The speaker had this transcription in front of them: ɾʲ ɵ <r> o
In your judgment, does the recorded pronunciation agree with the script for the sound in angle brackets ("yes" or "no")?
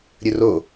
yes